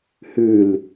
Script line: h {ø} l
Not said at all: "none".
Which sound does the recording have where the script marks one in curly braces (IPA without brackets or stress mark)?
ʉ